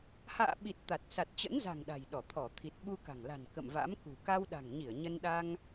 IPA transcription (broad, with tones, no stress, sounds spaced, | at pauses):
h a̰ː˧˨ ɓ i˨˩ t̚ t̪ a˨˩ t̚ s a˨˩ t̚ t͡ɕ ə̰˧˥ n z a̤˨˩ ŋ ɗ a̤˨˩ j ɗ ɔ˧˩ t̪ʰ ɔ˧˩ t̪ʰ i˨˩ t̚ ɓ u˧ k a̤˨˩ ŋ l a̤˨˩ n k ə̰˧˨ m v a̰˧˥ m k ṳ˨˩ k a˧ w ɗ a̤˨˩ ŋ ɲ i˧˩ ə̯ ɲ ə˧ n ɗ a˧ ŋ